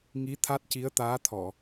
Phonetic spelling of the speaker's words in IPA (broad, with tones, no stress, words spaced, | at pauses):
ŋi˧˥t̪ʰa˦˥t̚ ci˧˥ə̯t̪aː˧˥t̪ʰɔ˨˩˨